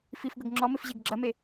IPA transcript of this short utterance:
f i f ɡ ɤ ɡ ŋ͡ǁ ɔ m ɪ f ʑ e ɡ ɡ͡ǁ ɐ m e

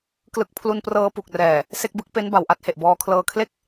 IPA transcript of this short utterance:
k l ɯ˦˥ k̚ pʰ l u˧ n p r ɤː˧ p u˨˩ k̚ r ɛː˨˩ | s e˥˩ k̚ b ɯ˥˩ k̚ p e˦˥ n b a˨˩ w ʔ a˥˩ t̚ h e˨˩ ʔ b ɔː˧ kʰ l ɤː˧ kʰ l e˥˩ k̚

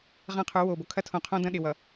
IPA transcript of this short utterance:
ʁ ɐ̃˦˨ qʰ u˨˦ w o˨ b o˨ kʰ ɐ˦ tʰ õ˨ qʰ õ˦ d ɐ̃˦ ɗ ɪ˨ w ʌ˨

